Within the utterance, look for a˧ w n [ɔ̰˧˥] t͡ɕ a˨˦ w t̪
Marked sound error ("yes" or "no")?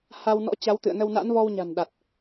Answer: no